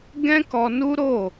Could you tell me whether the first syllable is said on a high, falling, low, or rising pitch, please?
high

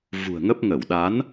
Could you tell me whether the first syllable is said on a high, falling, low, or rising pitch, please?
low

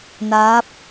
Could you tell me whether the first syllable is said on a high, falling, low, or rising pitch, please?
rising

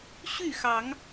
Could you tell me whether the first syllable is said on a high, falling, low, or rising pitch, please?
falling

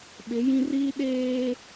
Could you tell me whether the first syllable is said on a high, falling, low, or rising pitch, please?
rising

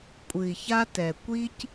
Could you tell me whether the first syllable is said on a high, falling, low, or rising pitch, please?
low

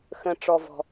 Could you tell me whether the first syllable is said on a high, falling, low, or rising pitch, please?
low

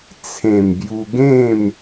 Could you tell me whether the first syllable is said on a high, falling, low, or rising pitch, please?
low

